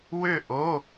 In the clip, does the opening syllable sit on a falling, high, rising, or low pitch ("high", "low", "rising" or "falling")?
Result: falling